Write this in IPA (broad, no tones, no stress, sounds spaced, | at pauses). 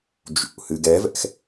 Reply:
d͡ʒ ṵ h ɨ ɡ ɛ v ɛ̰ x